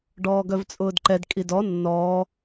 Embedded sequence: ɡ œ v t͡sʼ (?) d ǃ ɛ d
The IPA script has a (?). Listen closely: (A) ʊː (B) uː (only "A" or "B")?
A